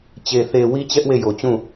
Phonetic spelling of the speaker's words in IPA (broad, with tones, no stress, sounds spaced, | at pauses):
t͡ɕ e˨ θ e˨ w i˦ t͡ɕ ɛ˦ ʔ w e˦˨ j o˨ t͡ɕ ũ˦˨